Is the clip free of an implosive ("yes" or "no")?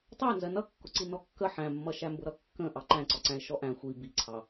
yes